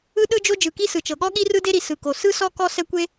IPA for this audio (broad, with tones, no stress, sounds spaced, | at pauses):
ɯ˥ ɗ ɯ˥ d͡ʒ o˥ d͡ʒ ɯ˩ k i˥ s ɯ˩ t͡ʃ ɤ˩ ɠ ɔ˥ ɠ i˥ r ɯ˥ d e˥ ɾ i˩ s ɯ˩ k o˩ s ɯ˥ s ɔ˥ k ɔ˥ s ɛ˥ kʷ e˥